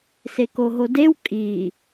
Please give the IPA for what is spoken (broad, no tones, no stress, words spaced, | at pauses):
sekoɦodew kʼi